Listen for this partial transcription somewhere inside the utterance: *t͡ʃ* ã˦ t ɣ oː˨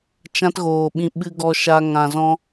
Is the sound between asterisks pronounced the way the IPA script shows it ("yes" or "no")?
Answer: yes